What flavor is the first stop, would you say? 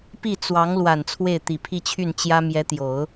plain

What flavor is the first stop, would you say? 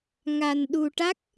implosive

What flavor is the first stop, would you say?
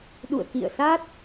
implosive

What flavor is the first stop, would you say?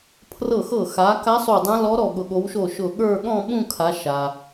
aspirated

